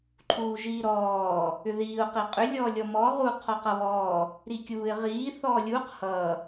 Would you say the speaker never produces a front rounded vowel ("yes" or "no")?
no